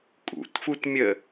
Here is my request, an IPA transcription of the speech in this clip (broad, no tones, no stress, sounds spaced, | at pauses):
kʼ ṵ t f u t mʲ ə